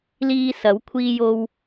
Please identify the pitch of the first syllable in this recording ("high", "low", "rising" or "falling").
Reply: high